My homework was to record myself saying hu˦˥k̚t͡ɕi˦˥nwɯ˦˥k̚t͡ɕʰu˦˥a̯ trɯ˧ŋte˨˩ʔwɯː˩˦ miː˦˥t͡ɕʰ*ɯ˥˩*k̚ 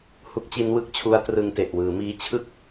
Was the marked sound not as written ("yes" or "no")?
no